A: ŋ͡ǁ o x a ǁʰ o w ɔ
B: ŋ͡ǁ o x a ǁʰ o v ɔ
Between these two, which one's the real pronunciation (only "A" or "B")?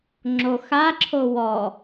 A